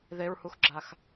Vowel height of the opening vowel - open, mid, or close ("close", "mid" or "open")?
mid